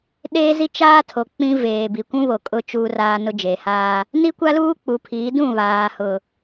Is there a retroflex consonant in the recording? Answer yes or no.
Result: no